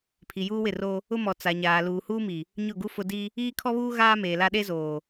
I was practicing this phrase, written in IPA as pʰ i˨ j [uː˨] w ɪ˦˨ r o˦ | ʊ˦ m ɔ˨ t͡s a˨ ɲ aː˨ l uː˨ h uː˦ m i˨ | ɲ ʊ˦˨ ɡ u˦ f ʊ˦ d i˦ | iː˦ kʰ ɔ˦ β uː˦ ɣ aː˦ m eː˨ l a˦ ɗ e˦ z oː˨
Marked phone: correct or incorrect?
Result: incorrect: uː˦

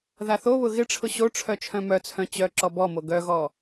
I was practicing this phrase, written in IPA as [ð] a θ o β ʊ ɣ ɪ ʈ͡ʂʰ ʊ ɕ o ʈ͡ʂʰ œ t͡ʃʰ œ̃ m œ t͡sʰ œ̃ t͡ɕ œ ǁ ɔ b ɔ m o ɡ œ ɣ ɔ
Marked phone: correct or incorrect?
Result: correct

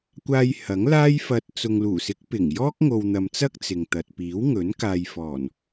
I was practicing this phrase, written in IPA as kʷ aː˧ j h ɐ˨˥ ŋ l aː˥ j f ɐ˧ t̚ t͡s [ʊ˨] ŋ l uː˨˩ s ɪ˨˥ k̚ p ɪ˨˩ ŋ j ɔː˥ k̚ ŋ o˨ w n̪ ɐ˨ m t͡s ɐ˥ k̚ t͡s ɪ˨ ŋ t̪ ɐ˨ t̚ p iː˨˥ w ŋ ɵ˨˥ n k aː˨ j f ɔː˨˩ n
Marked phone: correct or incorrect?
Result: correct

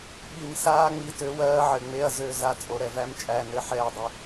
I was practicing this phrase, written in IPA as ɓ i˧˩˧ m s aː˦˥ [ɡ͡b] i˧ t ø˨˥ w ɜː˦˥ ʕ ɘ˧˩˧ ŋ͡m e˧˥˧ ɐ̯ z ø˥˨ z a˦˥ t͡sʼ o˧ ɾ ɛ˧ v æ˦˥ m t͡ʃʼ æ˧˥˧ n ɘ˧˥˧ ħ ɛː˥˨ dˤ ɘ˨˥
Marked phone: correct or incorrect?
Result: incorrect: ŋ͡m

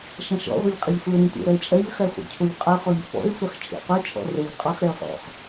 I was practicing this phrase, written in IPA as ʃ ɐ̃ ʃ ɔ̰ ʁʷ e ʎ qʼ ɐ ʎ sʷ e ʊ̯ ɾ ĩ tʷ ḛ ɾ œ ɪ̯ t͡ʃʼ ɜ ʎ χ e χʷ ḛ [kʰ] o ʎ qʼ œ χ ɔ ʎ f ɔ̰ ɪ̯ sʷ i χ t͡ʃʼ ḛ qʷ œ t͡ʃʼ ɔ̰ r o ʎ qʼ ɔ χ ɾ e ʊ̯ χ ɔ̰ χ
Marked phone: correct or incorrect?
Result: incorrect: cʰ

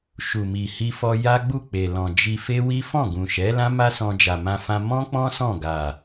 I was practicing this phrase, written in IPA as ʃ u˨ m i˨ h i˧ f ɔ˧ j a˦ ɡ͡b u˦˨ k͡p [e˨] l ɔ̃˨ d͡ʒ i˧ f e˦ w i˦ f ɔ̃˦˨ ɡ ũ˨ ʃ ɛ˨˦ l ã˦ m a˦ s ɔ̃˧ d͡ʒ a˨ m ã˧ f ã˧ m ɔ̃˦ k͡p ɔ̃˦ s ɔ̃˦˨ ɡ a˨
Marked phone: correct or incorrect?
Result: correct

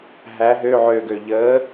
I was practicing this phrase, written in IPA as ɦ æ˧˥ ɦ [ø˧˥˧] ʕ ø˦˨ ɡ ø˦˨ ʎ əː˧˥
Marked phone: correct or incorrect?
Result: correct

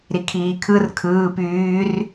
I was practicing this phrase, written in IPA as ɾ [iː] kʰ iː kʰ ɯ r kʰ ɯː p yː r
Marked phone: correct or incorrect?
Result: incorrect: i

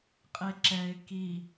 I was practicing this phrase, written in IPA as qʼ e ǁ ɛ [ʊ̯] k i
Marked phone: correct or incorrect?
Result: incorrect: ɪ̯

